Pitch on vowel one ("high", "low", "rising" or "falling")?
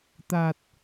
low